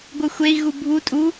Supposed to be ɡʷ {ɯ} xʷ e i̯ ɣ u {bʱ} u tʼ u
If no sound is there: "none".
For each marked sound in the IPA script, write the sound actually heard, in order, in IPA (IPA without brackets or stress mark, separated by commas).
ɯ, bʱ